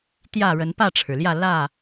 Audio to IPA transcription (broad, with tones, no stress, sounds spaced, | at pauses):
t̪ j ä˥˨ ɻ ə˨˦ n p ä˥˨ ʈ͡ʂʰ ɻ̩˩ l j ä˥˨ l ä˥˨